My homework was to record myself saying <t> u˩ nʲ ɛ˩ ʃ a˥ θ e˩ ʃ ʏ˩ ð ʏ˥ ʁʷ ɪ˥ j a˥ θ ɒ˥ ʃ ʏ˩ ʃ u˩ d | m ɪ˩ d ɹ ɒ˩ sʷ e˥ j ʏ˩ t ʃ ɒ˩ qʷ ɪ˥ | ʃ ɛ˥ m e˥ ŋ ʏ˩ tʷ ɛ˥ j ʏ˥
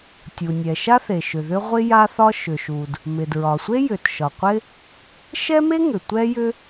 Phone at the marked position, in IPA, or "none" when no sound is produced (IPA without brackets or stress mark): tʲ